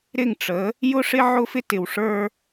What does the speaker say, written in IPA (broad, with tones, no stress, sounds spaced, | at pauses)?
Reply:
ɾ ɪ˦˨ ŋ ʈ͡ʂ ə˨˦ | j ʊ˦ ʂ ɪ˦ ʕ ʊ˦ f ɪ˦ t ɪ˨ w ʂ ə˞˦